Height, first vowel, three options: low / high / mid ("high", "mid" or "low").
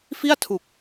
high